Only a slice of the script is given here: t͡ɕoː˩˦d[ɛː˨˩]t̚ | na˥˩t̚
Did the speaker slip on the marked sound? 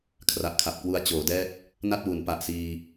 yes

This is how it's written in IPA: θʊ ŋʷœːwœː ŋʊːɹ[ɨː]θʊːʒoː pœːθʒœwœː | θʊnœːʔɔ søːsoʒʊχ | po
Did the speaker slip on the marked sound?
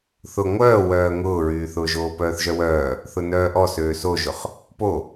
yes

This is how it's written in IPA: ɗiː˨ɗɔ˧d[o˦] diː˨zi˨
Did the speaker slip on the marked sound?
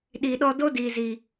no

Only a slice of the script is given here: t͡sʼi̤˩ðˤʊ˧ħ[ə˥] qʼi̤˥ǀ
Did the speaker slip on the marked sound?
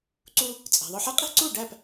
no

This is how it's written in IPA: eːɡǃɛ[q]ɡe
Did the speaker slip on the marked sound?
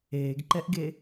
yes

